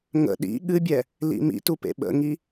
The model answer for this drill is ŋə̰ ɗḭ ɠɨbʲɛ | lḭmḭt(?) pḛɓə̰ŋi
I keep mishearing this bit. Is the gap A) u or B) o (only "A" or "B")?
A